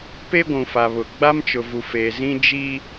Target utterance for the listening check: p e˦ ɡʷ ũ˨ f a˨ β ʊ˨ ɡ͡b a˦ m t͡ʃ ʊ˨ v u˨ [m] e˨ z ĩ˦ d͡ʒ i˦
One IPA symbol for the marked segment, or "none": f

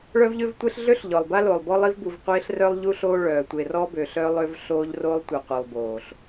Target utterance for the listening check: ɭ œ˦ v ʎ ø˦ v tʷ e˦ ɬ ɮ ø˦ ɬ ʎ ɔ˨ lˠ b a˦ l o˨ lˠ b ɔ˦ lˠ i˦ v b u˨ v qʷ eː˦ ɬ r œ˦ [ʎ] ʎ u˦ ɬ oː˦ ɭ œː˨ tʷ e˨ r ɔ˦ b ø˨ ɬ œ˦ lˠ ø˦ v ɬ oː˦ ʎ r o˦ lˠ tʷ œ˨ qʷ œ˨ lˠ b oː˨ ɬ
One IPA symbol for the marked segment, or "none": lˠ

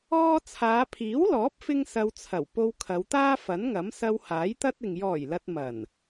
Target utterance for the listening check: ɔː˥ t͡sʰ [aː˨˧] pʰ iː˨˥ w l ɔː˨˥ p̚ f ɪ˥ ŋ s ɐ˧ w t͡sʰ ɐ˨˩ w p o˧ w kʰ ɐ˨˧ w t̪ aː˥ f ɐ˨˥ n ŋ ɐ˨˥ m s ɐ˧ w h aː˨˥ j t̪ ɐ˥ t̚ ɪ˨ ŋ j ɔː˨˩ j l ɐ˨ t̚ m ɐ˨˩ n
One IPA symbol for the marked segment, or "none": aː˨˧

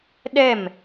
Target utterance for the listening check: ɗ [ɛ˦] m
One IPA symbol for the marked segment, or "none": ɛ˦˨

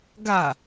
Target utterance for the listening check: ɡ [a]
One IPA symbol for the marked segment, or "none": a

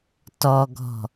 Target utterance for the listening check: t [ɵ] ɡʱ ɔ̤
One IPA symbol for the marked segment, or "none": ɔ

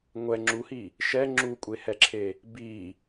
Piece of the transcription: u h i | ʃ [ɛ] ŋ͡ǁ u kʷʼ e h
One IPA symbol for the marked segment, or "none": ɛ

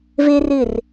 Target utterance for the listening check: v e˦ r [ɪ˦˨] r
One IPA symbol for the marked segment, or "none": ɪ˦˨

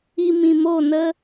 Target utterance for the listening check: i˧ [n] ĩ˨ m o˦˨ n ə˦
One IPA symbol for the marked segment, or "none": m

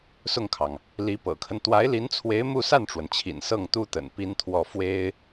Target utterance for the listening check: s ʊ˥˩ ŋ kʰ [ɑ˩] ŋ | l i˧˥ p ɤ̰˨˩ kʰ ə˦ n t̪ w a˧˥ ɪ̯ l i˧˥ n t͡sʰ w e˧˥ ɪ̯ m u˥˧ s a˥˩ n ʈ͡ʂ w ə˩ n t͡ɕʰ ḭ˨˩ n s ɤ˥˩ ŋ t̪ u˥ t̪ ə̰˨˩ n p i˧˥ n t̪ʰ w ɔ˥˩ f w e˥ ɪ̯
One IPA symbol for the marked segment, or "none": ɑ˩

